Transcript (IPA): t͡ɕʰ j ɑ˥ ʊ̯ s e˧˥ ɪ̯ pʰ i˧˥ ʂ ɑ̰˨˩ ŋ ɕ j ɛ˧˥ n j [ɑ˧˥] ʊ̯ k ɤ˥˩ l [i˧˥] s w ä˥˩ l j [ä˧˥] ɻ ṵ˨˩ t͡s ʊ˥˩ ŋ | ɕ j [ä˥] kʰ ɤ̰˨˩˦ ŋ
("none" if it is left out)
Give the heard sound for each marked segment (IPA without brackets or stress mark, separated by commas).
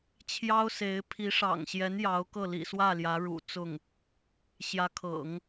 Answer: ɑ˧˥, ḭ˨˩, ä˧˥, ä˧˥